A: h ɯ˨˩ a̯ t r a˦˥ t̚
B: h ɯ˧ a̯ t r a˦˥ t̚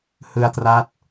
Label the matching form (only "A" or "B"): B